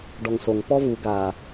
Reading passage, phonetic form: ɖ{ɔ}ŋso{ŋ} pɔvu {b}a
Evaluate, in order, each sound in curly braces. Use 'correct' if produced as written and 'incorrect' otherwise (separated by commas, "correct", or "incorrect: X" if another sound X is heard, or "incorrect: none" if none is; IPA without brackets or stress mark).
correct, correct, incorrect: ɡ